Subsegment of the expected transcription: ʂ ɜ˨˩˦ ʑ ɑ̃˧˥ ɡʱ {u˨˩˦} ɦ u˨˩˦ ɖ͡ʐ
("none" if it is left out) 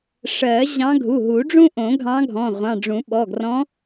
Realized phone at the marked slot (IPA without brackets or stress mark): u˩˧˩